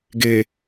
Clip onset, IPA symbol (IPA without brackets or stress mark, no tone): ɡ